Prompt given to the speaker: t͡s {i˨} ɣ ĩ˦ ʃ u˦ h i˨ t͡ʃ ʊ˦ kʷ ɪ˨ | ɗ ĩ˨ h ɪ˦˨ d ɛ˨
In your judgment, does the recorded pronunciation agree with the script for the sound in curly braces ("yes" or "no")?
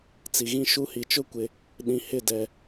yes